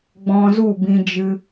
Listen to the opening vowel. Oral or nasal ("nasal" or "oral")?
nasal